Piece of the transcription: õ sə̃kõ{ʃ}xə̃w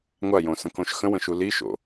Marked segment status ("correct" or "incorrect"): correct